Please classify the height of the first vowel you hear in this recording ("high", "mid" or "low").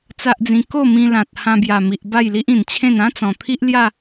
low